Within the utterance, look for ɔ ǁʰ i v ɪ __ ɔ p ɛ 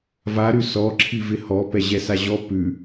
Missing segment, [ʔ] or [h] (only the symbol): h